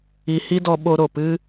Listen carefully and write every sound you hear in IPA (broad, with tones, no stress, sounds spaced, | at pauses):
i˧ h i˦ d ɔ˧ ɓ o˧ ɾ o˨ p ɨ˦